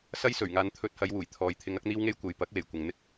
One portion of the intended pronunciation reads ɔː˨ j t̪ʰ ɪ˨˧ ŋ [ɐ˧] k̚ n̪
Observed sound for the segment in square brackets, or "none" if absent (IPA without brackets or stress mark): ɐ˧